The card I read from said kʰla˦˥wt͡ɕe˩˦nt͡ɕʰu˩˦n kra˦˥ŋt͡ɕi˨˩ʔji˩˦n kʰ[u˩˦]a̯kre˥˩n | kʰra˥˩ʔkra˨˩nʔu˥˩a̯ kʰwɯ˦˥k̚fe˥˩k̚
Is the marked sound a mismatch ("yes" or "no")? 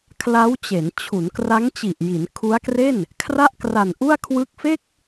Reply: yes